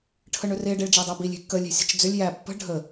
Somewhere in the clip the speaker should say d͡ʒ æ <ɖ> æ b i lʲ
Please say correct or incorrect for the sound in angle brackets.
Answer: incorrect